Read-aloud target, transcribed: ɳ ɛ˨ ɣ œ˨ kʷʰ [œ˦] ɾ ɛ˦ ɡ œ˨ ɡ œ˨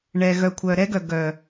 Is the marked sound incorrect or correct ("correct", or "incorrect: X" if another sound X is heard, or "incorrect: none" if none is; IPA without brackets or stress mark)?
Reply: incorrect: œ˨